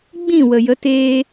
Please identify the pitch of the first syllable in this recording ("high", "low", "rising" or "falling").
falling